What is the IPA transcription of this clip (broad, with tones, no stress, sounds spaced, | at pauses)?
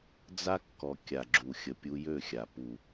d͡z a˦ kː ɔ˨ kʲ a˨ ɡ͡ǁ u˨ xʲ ə˨ pʲ u˧ j ø˦˨ xʲ a˨ p u˨